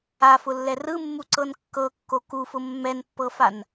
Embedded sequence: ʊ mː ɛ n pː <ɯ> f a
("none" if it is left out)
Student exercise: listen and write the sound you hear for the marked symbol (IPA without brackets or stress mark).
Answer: ɤ